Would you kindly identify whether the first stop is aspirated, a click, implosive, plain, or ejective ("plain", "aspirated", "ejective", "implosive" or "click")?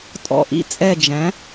ejective